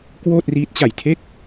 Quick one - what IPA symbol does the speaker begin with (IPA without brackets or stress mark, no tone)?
k